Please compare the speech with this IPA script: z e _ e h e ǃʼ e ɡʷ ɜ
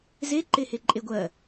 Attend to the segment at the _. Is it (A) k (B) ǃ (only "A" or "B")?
B